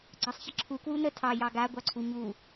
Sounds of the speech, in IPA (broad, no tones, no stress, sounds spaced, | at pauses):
ɡ͡ǀ ɑ sˤ ç ə ǁʰ u k w u n ə tʰ ɑ j ɑ ɡ a ɡʷ ɑ ǀʰ u ɲ u